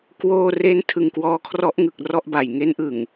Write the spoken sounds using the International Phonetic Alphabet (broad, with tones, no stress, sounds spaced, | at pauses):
k w oː˧ r e˦˥ n tʰ ɯ˨˩ ŋ k w ɔː˧ kʰ r ɔ˦˥ ʔ ŋ ɯ˨˩ k̚ r ɔ˥˩ ʔ b a˨˩ j ŋ e˦˥ n ʔ ɯ˨˩ ŋ